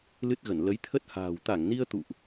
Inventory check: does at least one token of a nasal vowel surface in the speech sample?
no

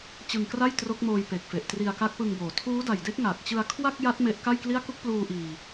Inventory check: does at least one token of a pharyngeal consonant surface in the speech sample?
no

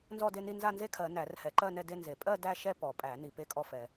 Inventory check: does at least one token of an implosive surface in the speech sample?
no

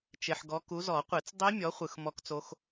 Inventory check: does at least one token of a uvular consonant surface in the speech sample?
yes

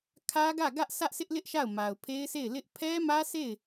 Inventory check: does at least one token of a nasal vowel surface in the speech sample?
no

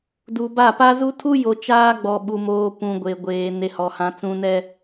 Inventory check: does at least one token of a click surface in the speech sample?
no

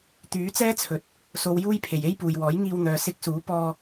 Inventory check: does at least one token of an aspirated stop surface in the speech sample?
yes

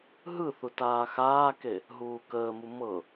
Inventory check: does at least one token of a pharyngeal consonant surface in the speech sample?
no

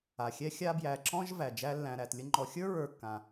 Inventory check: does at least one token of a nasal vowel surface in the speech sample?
yes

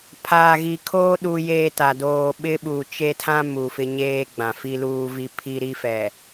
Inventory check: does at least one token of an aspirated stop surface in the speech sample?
yes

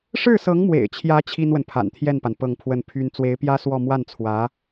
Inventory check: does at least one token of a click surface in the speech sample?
no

